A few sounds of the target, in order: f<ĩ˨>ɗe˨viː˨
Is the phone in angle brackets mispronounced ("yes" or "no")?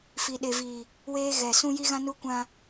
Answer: yes